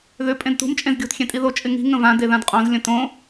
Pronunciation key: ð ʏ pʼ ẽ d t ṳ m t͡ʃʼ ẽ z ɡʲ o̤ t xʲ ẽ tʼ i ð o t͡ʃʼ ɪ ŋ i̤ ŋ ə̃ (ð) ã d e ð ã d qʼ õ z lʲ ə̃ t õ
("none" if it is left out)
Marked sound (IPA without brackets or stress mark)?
v